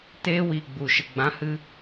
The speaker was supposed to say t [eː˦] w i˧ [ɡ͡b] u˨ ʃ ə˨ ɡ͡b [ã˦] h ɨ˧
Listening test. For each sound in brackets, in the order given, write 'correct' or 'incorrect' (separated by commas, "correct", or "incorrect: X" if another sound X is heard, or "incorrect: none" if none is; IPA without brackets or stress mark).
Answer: correct, correct, incorrect: ã˨˦